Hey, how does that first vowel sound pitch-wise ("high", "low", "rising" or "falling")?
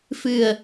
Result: low